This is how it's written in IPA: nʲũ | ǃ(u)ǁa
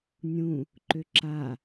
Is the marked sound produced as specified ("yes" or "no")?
no